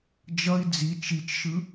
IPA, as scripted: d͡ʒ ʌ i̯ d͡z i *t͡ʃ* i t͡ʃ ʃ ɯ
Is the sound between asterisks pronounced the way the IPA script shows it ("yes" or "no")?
yes